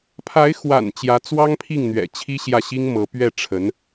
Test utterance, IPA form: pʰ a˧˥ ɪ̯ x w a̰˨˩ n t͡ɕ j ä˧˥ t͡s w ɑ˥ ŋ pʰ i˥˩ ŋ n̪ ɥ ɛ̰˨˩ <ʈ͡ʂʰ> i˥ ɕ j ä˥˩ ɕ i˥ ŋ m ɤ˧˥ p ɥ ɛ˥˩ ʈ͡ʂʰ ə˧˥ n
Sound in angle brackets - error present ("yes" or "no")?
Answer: yes